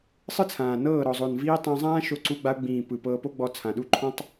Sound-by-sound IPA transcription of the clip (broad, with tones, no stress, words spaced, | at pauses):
sˤɯ˦t͡sʰãː˨nɤː˦˨ ɾɔ˨zˤo˨nviː˧ tˤã˧zˤãː˦ʃo˧ǀu˧ ɡ͡ba˧ʊ̯ɡ͡bĩː˨ pɯ˨ pɤː˧po˦ɡ͡bɔ˧ t͡sʰã˨ɗu˦ ǃʰɔ̃˦tˤ